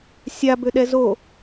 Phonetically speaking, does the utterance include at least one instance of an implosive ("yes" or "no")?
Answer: yes